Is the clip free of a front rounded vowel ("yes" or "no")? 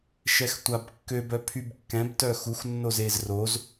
no